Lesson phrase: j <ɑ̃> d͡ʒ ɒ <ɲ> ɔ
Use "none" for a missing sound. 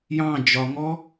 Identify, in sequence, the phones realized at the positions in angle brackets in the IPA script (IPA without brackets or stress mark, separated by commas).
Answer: ɑ̃, ŋ